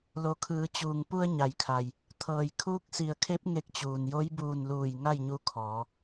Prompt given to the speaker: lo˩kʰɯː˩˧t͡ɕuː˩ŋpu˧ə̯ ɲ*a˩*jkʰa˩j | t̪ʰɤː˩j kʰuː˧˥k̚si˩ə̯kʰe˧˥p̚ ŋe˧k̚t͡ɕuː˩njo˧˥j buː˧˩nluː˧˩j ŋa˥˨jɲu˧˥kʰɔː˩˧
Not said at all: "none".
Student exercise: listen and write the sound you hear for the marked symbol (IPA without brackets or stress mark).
a˩